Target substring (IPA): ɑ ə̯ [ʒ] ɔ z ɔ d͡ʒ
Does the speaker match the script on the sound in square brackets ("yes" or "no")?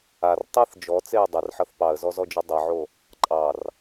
no